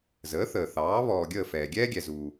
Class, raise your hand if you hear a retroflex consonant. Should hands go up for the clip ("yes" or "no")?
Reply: no